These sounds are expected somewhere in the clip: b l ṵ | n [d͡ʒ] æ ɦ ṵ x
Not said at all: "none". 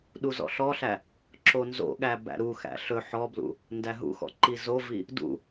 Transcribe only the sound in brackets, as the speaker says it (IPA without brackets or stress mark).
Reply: d